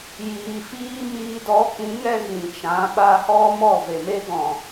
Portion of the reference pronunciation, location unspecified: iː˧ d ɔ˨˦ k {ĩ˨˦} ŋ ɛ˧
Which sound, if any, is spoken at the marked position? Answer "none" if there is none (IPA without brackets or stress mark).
ĩ˨˦